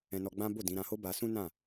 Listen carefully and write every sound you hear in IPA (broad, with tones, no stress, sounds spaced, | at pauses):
ɛ̃˧ n ɔ˧ ɡ͡b ã˦ b o˦˨ d ĩ˨˦ ɾ ã˧ h o˦ b a˧ s ũ˦ n ã˦˨